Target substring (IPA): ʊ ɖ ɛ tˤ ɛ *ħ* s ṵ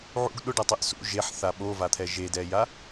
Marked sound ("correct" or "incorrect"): incorrect